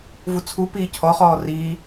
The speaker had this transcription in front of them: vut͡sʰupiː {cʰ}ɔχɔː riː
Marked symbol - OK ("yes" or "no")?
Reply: yes